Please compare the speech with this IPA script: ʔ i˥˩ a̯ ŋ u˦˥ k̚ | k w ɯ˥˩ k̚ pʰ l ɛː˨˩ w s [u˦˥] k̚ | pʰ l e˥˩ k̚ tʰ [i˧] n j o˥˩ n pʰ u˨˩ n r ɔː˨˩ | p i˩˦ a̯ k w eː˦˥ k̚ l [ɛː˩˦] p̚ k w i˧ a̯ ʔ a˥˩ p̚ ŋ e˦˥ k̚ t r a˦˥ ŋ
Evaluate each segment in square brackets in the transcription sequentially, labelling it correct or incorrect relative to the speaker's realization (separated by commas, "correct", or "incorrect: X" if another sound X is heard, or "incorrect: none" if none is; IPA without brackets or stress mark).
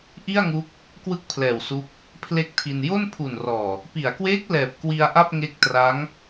correct, correct, incorrect: ɛː˨˩